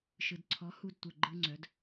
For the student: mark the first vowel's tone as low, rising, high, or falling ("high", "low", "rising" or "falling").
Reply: low